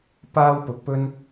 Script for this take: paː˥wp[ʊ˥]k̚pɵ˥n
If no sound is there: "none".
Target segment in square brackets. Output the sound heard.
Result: ʊ˨˥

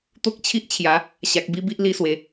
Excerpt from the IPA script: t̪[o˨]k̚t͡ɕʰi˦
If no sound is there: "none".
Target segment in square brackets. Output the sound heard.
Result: o˦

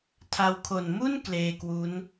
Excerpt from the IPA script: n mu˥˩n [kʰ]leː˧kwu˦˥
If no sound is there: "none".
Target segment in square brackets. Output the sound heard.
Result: k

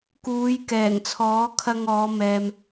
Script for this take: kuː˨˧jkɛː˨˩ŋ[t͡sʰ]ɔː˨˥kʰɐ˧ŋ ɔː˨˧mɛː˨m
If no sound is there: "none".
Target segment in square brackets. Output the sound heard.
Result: t͡sʰ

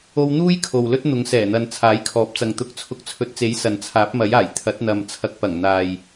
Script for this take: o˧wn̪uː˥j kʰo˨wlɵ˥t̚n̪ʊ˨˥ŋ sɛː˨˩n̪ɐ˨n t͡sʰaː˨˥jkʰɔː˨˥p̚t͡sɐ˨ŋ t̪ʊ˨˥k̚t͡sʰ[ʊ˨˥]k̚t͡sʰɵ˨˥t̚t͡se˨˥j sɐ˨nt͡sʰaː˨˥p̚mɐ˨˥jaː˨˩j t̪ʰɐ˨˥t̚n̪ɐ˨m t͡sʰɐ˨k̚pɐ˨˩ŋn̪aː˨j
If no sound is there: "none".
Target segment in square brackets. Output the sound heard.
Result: ʊ˨˥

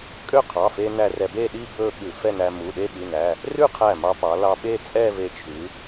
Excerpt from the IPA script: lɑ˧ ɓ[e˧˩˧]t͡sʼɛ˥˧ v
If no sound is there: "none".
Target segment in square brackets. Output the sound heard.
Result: e˥˧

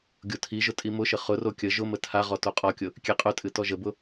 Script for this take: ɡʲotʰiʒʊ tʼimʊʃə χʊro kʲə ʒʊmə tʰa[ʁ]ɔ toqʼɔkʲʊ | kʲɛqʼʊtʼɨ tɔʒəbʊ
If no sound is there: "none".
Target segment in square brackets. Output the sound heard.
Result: ʁ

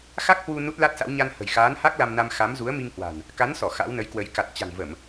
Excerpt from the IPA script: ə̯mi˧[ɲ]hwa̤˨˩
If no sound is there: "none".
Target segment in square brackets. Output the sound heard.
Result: ŋ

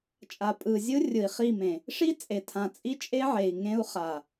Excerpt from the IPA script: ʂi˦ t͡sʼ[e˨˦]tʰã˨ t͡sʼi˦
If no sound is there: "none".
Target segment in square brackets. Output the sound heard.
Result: e˨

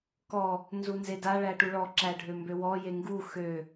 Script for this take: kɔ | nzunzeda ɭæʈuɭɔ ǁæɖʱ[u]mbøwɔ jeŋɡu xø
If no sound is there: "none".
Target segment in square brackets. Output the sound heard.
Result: ø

